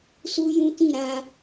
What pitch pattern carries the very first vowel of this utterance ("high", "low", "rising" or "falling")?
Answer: high